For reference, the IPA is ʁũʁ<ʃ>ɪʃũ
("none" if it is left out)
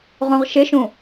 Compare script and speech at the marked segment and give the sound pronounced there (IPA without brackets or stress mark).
ʃ